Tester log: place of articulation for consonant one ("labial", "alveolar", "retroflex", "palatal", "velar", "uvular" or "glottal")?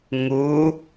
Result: velar